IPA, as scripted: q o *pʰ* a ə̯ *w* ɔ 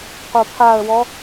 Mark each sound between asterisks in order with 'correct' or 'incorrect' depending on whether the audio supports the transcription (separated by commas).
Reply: correct, correct